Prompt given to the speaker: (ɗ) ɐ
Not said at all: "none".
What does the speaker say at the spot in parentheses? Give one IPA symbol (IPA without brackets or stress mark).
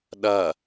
ɗ